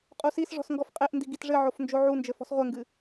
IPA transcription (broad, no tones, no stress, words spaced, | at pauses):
qʼusisʐɔ̤s ŋɡɔfqʼeʔndi ɡitʐɘʕof nd͡ʒoʕund͡ʒɘ fɔ̤sʁʷɘŋɡɨ